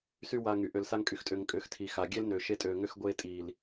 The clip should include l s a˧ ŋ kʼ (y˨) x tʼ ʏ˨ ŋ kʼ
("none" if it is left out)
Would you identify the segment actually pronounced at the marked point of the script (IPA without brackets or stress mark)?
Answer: y˨